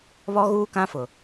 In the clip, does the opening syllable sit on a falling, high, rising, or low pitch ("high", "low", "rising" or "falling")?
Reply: high